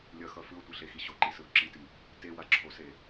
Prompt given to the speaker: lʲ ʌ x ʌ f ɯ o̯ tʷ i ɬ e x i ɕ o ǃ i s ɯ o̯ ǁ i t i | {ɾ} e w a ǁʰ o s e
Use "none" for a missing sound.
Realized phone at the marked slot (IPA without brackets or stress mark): t